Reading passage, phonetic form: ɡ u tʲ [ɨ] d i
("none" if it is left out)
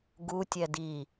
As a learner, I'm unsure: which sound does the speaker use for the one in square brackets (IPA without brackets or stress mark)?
ɛ